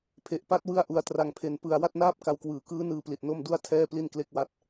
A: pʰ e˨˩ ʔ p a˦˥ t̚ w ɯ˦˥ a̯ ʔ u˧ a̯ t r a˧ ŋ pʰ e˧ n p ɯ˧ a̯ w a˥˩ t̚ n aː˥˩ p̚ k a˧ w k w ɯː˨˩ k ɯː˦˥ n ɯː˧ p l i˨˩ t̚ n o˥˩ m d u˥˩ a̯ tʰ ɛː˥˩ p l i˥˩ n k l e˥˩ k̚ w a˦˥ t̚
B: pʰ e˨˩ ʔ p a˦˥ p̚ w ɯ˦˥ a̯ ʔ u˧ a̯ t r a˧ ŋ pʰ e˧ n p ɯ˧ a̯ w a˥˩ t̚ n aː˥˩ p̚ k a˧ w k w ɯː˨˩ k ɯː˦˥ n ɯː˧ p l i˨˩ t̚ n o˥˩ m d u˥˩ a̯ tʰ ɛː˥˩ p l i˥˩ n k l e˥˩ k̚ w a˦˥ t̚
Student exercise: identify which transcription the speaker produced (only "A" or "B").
A